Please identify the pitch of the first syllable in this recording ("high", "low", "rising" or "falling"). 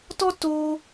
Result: high